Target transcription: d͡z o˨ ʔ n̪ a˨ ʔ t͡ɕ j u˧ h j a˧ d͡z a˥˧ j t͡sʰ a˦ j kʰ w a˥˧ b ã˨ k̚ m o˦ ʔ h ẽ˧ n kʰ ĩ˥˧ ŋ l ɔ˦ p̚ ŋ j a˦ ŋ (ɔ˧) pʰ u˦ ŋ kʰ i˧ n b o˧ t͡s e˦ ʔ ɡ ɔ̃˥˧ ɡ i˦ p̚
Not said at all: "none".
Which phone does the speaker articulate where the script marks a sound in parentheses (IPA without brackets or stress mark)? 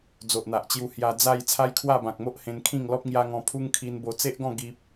ɔ̃˧